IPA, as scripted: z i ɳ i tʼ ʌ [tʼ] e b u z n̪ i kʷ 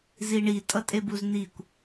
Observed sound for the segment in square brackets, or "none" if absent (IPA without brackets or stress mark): tʼ